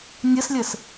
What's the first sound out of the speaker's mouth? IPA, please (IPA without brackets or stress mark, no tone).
nʲ